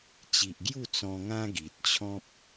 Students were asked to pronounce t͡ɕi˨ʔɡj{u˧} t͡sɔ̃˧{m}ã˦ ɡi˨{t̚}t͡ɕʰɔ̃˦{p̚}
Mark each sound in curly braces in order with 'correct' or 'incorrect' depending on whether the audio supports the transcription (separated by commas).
incorrect, incorrect, correct, correct